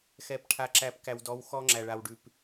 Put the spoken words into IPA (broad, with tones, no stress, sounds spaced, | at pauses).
x ɛ˨ p ʈʰ a˨ ǁ æ˨ p k æ˨ w d ɔ˨˦ w x ɔ˦ ŋ͡ǁ æ˨ ɭ a˨ w ɖ ʉ˨ p